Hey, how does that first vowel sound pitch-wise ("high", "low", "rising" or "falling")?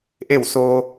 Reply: falling